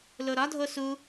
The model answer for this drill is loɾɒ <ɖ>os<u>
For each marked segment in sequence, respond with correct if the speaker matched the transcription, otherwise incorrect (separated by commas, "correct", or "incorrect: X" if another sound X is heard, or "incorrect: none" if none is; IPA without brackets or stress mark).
incorrect: dʱ, correct